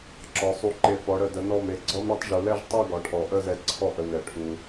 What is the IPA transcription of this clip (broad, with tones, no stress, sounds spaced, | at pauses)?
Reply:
ǁ ɒ˩˧ sˤ u˧˩ ǃ e˧˩ f ɔ˩˧ ɽ ə˧˩ d ə˩˧ n ɔ˧˩ m e˧˩ ɡ͡ǀ ɔ˥ m ɽ ɒ˥ tˤ ʒ u˩˧ l ɛ˥˧ ʒ tˤ ɛ˥˧ ɡ ɒ˩˧ ʈʰ ɔ˩˧ ʔ ə˥˧ z ɛ˧ ǀʰ ɔ˥˧ ʔ ə˧ n ɛ˧˩ ʈʰ u˧